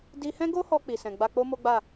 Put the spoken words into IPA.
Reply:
d i˧ h ɛ̃˦ ɡ o˦ h ɔ˧ k͡p i˨ s ɛ̃˨ ɡ͡b a˧ k͡p o˦ m o˦ ɡ͡b a˦˨

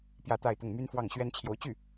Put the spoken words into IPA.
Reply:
p j ä˥˧ t̪ a˥˧ ɪ̯ t̪ ʊ˥˩ ŋ m y˥ n f w ɑ˥˩ ŋ ɕ ɥ ɛ˥ n t͡ɕʰ j o˧˥ ʊ̯ t͡ɕ y˥˩

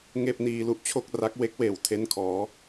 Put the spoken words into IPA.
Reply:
ŋ eː˥˩ p̚ n iː˧ l u˥˩ ʔ t͡ɕʰ o˥˩ k̚ r a˦˥ k̚ w e˦˥ k̚ w eː˨˩ w tʰ e˦˥ n kʰ ɔː˩˦

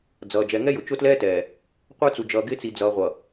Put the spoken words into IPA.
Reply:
d͡z ʌː˨ d͡ʒ ɛ˨ ŋ ɛ˦ j ʊ˨ t͡ʃ ʊ˦ t l ɛː˦ t ɛː˨ | qʷ ə˞˦ t͡s u˨ d͡ʒ ʌː˨ ɡ ɪː˦ t͡s i˨ d͡z ʌː˨ ʁʷ ʌ˨

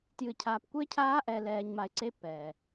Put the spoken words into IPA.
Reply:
t j ɨ˨ cʰ aː˨ p kʷ e˦ cʰ aː˦ ʔ ɛ˨ l ɛː˨ ɲ m a˨ ɪ̯ ǀ e˦ p ɛ˨

